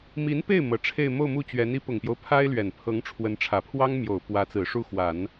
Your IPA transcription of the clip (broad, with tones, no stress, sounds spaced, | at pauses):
m i˧˥ n p e˥˩ ɪ̯ m ɤ˨˩ ʈ͡ʂʰ e˥˧ ɪ̯ m o˥˧ ʊ̯ m u˥˩ t͡ɕ ɥ ɛ˧˥ n i˧˥ p ʊ˨˩ ŋ p j o˦ ʊ̯ pʰ a˥ ɪ̯ l ɥ ɛ˨˩ n pʰ ɤ˧˥ ŋ ʈ͡ʂʰ w ə˧˥ n ʈ͡ʂʰ ä˨˩ pʰ w ɑ˥ ŋ m j o˨˩ ʊ̯ p w ä˧˥ t͡s ɹ̩˨˩ ʂ u˥˩ x w a˨˩˦ n